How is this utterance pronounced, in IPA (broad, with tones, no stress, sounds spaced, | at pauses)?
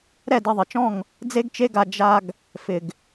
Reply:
ɾ ɛ˦˨ d e˧ ðˤ ɪ˨ t͡ʃ ɔ̃˦˨ ŋ | d͡z e˦ ɡ t͡ʃ e˦ ɡ a˧ d͡ʒ a˧ ɡ | f ɪ˨ ɡ